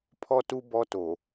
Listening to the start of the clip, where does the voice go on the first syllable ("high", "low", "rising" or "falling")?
high